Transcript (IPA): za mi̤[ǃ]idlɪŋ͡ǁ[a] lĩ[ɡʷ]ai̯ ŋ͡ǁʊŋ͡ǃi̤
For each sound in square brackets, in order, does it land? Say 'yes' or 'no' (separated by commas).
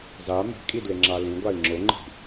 no, yes, yes